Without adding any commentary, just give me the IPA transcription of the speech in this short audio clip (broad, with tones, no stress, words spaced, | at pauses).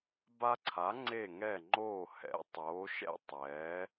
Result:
ba˦ǀʰa˨˥ ŋ͡ǀe˦˨ŋɛ˦˨ŋ͡ǃoː˦˨ hɛ̰˨˥tˤoː˨˥ʃɛ̰˦ tˤɛː˨˥